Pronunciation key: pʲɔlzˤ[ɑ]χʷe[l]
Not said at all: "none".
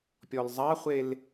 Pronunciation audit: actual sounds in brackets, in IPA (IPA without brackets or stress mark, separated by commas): ɑ, l